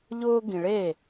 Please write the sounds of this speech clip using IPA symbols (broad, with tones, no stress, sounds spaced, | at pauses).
ʎ ʊː˦ ɡ ĩ˨ ɭ e˦˨